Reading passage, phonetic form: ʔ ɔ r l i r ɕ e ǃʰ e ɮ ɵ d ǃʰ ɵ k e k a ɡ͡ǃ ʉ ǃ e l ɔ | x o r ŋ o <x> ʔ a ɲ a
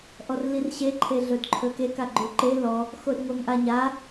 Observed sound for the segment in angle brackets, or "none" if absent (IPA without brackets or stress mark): ŋ